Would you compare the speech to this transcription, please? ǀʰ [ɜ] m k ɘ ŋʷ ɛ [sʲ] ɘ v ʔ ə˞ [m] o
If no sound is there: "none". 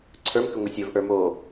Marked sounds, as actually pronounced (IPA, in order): ə˞, sʲ, m

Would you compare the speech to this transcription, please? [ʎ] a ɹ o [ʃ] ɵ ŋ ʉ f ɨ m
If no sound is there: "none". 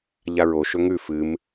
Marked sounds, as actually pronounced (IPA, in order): ʎ, ʃ

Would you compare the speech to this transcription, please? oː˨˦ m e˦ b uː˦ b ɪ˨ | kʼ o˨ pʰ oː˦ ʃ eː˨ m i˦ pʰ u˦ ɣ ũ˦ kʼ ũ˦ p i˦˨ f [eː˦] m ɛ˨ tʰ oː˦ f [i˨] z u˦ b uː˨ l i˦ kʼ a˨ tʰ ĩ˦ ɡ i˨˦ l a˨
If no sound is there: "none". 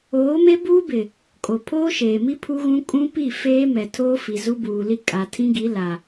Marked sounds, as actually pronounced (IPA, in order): eː˦, i˨

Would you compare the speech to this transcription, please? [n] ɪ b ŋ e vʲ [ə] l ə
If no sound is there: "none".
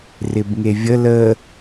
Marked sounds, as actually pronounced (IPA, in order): r, ə

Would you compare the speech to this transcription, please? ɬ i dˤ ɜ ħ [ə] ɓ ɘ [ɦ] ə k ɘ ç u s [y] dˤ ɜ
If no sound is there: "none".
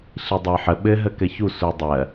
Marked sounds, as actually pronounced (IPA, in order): ə, ɦ, u

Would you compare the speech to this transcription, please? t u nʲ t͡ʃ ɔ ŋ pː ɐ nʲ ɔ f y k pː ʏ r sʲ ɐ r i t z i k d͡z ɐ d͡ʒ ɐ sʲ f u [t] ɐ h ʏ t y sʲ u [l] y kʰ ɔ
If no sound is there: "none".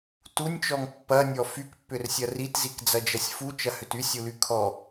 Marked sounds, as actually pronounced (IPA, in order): t͡ʃ, l

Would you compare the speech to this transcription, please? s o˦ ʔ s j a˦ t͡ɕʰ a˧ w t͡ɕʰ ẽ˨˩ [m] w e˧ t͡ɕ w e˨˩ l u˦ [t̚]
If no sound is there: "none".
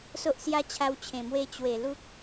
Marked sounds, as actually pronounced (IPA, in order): m, k̚

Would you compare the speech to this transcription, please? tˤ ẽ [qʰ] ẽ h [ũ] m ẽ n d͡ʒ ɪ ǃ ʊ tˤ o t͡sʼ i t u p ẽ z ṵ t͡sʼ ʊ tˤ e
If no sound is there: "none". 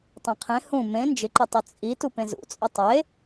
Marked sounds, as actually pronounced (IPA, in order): qʰ, ũ

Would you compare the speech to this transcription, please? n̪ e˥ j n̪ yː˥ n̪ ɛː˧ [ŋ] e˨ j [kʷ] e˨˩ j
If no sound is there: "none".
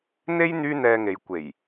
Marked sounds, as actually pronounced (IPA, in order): ŋ, kʷ

